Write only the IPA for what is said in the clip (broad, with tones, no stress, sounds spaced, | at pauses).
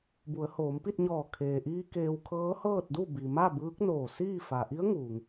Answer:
b u˩˧ ə̯ h oː˩˧ m p i˥˨ t̚ ɲ ɔː˧˩ kʰ eː˩ ʔ iː˧ k eː˧ w kʰ ɤː˧˥ h ɤː˥˨ t̚ d u˥˨ b i˩ m a˥˨ b ɯː˧˥ k̚ n oː˧˩ s iː˥˨ f a˩ ʔ i˧˥ ə̯ ŋ uː˩ ŋ